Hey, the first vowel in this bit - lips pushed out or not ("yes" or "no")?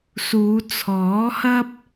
yes